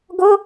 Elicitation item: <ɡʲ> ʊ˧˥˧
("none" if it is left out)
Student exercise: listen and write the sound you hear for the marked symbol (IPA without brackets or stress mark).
ɡ